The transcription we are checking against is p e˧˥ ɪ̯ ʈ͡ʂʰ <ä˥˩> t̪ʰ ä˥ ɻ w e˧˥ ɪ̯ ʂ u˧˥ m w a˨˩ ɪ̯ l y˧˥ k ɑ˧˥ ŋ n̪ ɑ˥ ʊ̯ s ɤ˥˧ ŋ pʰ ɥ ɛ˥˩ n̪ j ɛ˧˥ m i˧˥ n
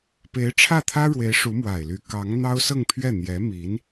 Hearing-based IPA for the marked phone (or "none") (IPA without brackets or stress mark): ä˥˩